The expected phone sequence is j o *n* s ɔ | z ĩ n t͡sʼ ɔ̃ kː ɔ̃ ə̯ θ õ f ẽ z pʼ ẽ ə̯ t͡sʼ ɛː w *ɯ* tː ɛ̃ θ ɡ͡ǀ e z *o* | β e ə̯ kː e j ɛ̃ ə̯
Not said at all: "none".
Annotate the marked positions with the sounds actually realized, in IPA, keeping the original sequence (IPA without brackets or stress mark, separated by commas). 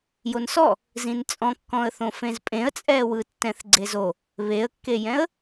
n, ɯ, o